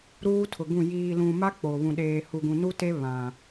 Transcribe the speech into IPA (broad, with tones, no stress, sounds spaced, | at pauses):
ɾ uː˦ tʰ ʊ˨ ɡ ũ˦˨ j iː˨ l ũ˨ m a˦ k͡p o˨ β ũ˨ ɗ eː˨ h u˨ ɡ ũ˨ n u˦ t e˦ β ã˨